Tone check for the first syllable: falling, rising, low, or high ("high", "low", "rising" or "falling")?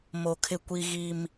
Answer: low